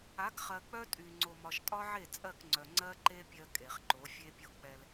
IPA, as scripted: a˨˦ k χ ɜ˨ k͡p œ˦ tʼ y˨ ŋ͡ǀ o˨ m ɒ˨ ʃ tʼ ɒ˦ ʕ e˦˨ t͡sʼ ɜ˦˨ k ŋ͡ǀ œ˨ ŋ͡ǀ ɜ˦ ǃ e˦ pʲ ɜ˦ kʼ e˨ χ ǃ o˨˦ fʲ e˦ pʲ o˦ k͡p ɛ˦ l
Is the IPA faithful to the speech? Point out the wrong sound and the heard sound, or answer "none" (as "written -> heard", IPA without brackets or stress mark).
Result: none